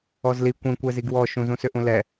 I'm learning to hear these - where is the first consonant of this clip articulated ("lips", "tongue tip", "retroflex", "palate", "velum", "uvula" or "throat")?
tongue tip